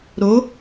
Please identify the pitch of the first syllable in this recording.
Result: rising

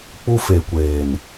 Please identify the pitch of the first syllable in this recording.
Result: high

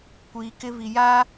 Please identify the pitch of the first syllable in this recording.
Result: low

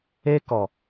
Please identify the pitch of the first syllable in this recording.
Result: high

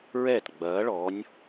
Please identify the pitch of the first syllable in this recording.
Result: falling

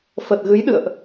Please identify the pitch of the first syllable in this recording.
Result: low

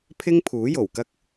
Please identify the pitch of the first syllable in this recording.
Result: high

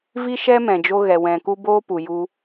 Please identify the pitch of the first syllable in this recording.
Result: high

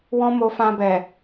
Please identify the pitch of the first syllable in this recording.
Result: high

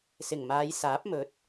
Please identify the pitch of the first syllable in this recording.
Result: low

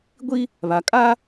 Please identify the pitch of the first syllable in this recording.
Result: high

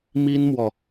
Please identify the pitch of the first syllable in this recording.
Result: high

